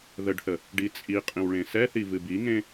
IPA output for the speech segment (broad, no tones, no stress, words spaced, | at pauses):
ðəɖθə | ɖit͡sʼiqʼĩw ɭẽsɛθi vɨbiŋẽ